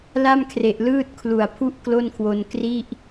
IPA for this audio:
l a˥˩ m kʰ r e˨˩ ʔ l ɯː˥˩ t̚ kʰ l u˨˩ a̯ pʰ u˥˩ ʔ k l o˥˩ n kʰ w o˧ n k r i˥˩ ʔ

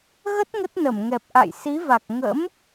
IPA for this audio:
ɣ ə˦˥ t̚ ŋ ə˦˥ t̚ n ə˧˩ m ŋ ɛ˨˩ p̚ ʔ a̰˧˨ j s i˨˦ v a˨˩ k̚ ŋ ə̰˧˥ m

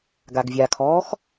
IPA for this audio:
ɡ a ɡ vʲ a kʰ ɔː x

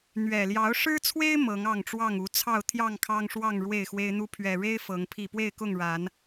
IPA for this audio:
n̪ ɥ ɛ˨˩ l j ɑ˨˦ ʊ̯ ʂ ɻ̩˦ t͡sʰ w e˦ ɪ̯ m ɤ˨˦ ŋ ɑ˥˨ ŋ ʈ͡ʂ w ɑ˥˨ ŋ u˨˦ t͡sʰ ɑ˥˨ ʊ̯ t̪ʰ j ɑ˥˨ ŋ kʰ ɑ˦ ŋ ʂ w ɑ˥˨ ŋ ɻ w e˥˨ ɪ̯ x w e˦ ɪ̯ n̪ u˦ pʰ ɥ ɛ˨˩ ɻ e˦ ɪ̯ f ɤ˨˦ ŋ pʰ i˥˨ p w e˥˨ ɪ̯ k ʊ˥˨ ŋ ɻ a˨˦ n

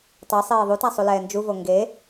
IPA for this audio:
tˤ e sˤ eː ðˤ u t a sˤ u l ɛː n d͡ʒ u v o ŋ ɡ e

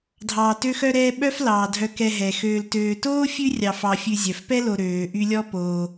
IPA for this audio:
dʱ ɑː˨ t ø˦ x œ˦ ɾ ɛː˦ ɓ œ˥ f l ɑː˩ dʱ œ˨ k ɛ˨ ɦ ɛ˩ x øː˨ l t øː˨ t oː˥ fʲ ʉ˦ rʲ ɑ˨ f ɑ˨ fʲ ʉ˨ zʲ œ˩ f p ɛ˥ l o˨ ɾ øː˩ ʔ y˦ lʲ ɔ˥ p oː˩

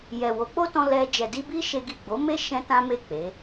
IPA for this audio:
j ɛ˨ w o˨˦ k͡p o˦ t ɔ̃˧ l ɛ˧ d͡ʒ ɛ˨ d i˧ b i˦ ʃ e˦ ɡ i˦˨ ɡ͡b o˨˦ m e˦ ʃ ɛ̃˦ t ã˦ m e˦˨ k͡p e˨˦

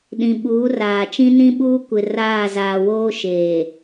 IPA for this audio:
ɗ ĩ˨ ɓ uː˨˦ r aː˨ t͡ʃ ĩ˦ n ĩ˦ ɓ uː˦ kʷ ɪ˨ r aː˦˨ z aː˨ w oː˦ ʃ eː˨

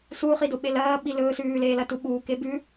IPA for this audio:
s u χ i d o ɓ e l ɐː ɓ i l ɵː s ʉː l eː l ɐ t u ɓ uː k e b ʉ

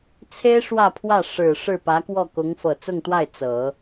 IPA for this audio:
t͡sʰ e˥ ɪ̯ ʂ w ä˥˧ pʰ w ä˥˩ ʂ ɻ̩˨˩ ʂ ɻ̩˥˩ p ä˧˥ k w ɔ˥˩ k ʊ˧˥ ŋ f ɤ˨˩ t͡s ʊ˥˧ ŋ t̪ w a˥˩ ɪ̯ t͡s ɤ˨˩˦

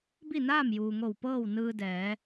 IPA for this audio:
b i˥˨ n aː˥˨ m j uː˩ ŋ o˧˩ w p ɤː˥˨ w n ɯː˧ d ɛː˩˧

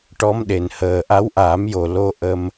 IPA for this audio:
ʈ ɔ˧˥ m ɗ e˨˩ n h əː˨˩ ʔ a˧˥ w ʔ aː˨˩˦ m j o˨˩ l o˧ ʔ ə˧ m

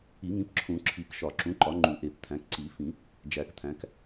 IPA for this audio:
i˨˩˦ ŋ ĩ˩˥ p ǁʰ ũ˨˩˦ ǁʰ i˨˩˦ k ʃ ɒ˨˩˦ ǁ ũ˩˥ ǃ ɒ˩˥ ŋ͡ǃ u˨˩˦ ʔ e˨˩˦ p t̪ʰ æ̃˩˥ k ǀ i˨˩˦ f ĩ˨˩˦ | d͡ʒ æ˨˩˦ k t̪ʰ æ̃˩˥ k

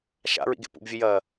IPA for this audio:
ʃ a̰ ɹ ḭ ɡ ḛ p ṵ b vʲ ɨ j ɐː

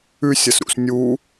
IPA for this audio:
ʉ sʲ ɐ s ɾ ṵ s nʲ u

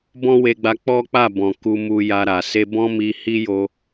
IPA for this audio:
b ɔ̃˦ w e˧ ɡ͡b a˧ k͡p ɔ˦ k͡p a˦˨ b ɔ̃˨ k u˧ m u˧ j a˧ ɾ a˨ s e˧ b ɔ̃˦ m i˧ h i˦ j o˧

